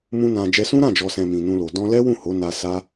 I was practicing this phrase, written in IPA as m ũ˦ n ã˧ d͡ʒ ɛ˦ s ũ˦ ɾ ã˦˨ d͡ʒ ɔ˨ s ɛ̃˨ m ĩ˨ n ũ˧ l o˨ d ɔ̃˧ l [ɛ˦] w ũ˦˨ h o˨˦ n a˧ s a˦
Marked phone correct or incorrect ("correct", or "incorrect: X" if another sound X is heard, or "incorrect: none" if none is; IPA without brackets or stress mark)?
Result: correct